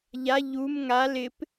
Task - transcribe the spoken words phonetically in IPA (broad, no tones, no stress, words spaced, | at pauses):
ʎa ʎum ŋal ɪp